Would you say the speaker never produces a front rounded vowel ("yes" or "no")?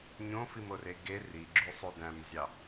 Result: no